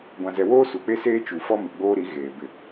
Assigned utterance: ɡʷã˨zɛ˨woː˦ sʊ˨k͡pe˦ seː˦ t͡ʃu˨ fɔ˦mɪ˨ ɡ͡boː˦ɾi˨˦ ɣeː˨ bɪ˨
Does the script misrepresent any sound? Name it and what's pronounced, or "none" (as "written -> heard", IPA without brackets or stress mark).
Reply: ʊ˨ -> u˨